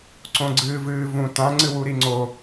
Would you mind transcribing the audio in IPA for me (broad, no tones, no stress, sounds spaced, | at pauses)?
ǀ õ ɡ͡ǀ ɨː v ɨː v ũ t ã ŋ͡ǀ ɨ w u ɾ i ŋ͡ǀ o